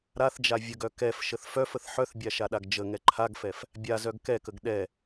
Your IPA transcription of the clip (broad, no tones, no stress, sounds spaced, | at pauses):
ɾ a θ d͡ʒ a vʲ ə ɡ œ k ɛ f ʃ ə θ f œ f ə θ ħ œ θ bʲ a ʃ a ɗ a ɡ d͡ʒ ə ŋ ɛ ǃʰ a ɡ f ɛ f | bʲ a z œ ɡ k ɛ k ə ɡ ɗ ɛ